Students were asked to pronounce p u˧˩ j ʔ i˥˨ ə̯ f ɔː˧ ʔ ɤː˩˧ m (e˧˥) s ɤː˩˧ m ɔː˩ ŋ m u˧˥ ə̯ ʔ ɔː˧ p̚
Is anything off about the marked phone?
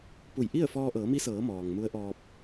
yes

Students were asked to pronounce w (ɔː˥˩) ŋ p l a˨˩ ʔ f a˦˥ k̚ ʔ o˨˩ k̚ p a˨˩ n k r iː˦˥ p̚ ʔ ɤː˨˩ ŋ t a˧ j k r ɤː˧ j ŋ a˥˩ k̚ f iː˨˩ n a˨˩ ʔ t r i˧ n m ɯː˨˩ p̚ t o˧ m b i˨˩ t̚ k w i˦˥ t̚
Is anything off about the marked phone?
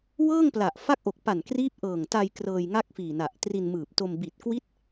yes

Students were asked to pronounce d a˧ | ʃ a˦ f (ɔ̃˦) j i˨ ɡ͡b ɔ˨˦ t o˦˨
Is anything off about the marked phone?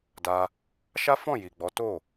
yes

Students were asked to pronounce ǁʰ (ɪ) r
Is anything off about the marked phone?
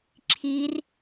yes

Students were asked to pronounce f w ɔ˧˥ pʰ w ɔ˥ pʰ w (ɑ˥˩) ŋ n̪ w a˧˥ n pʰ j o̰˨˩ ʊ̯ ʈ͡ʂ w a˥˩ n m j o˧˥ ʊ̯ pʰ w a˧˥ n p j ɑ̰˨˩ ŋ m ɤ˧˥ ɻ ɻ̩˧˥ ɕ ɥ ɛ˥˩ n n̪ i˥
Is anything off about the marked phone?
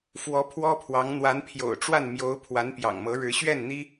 yes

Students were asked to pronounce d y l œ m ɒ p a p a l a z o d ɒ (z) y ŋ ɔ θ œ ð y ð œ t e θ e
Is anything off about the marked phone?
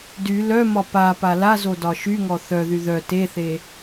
yes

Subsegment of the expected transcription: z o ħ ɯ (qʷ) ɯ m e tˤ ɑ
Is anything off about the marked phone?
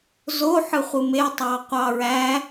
yes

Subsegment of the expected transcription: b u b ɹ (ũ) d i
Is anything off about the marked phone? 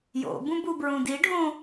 no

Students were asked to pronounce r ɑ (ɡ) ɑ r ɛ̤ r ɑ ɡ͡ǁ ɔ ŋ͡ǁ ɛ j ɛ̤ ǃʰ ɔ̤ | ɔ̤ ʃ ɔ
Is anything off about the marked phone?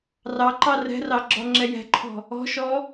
yes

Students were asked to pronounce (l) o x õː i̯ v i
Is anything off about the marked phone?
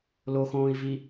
no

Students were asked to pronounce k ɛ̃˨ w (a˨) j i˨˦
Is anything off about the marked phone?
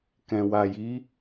no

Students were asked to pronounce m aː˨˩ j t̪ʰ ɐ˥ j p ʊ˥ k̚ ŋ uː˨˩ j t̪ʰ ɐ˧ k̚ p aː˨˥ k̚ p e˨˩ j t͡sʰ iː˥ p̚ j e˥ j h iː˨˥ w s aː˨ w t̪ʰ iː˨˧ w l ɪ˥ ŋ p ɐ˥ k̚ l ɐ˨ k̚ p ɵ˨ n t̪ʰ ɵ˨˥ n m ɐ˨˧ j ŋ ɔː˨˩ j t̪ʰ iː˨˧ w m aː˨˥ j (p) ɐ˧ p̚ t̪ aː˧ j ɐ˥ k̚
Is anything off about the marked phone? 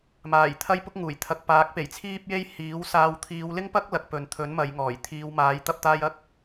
yes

